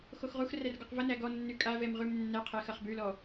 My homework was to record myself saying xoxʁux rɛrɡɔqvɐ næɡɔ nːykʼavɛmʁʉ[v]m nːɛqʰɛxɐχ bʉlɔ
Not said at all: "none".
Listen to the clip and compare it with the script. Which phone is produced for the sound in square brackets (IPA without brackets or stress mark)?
none